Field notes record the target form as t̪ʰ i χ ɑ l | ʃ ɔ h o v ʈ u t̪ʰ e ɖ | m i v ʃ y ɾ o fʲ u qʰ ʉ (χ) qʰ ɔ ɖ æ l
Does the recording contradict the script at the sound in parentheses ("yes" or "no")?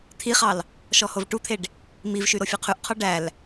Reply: yes